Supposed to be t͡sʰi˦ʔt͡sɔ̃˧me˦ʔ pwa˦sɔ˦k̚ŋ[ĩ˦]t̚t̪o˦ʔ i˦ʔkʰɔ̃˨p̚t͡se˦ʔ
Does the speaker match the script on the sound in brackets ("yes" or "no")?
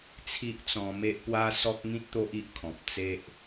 yes